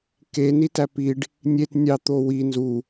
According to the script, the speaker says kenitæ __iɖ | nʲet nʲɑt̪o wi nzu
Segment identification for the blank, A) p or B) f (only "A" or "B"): A